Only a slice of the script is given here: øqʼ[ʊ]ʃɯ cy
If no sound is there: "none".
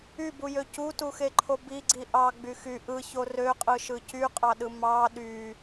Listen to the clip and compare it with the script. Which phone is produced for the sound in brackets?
ɯ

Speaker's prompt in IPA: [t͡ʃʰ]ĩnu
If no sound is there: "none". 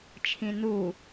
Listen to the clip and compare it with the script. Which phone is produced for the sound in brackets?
t͡ʃʰ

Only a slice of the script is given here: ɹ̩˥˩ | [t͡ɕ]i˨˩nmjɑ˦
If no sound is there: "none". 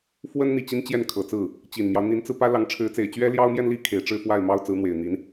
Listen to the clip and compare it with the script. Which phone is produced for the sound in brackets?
t͡ɕ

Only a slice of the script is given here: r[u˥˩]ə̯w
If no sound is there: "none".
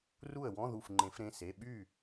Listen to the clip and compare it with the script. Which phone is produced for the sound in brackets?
u˥˩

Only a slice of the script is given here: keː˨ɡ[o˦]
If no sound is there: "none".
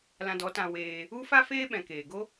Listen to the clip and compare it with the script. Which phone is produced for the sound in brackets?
o˦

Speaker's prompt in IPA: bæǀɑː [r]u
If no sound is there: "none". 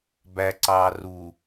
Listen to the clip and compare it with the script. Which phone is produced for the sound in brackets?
r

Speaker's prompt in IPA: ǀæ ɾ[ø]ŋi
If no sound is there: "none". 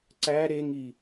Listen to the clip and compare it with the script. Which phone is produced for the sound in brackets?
e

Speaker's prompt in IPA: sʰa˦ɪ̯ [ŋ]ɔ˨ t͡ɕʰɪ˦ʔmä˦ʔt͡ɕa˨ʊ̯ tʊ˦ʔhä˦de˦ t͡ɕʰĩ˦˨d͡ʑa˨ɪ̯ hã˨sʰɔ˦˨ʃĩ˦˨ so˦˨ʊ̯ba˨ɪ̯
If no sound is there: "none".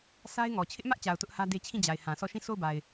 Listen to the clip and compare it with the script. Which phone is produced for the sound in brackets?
ŋ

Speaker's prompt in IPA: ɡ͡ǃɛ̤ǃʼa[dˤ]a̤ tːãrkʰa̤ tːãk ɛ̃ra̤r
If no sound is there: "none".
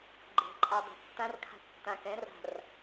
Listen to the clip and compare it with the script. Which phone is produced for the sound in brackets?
dˤ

